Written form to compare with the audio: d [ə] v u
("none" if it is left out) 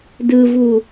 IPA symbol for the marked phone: ɯ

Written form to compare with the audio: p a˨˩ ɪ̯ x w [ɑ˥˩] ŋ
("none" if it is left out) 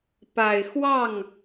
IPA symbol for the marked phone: ɑ˥˩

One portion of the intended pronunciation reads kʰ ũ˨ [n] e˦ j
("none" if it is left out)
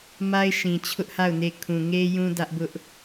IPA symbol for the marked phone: ŋ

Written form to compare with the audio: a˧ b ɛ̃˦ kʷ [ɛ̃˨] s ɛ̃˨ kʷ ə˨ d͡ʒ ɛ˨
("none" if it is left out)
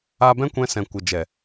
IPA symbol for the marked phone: ɛ̃˧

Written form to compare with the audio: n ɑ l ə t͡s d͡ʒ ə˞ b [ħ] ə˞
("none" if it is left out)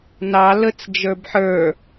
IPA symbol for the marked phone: ħ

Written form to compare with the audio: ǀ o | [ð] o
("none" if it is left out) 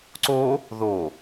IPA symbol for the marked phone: ð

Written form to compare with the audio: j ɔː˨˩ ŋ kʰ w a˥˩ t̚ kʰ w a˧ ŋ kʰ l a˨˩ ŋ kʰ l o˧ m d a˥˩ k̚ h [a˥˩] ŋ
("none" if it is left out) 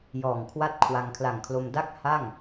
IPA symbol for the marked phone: a˥˩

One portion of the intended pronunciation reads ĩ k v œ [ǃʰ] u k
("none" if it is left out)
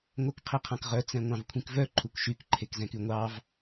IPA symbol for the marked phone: ǃʰ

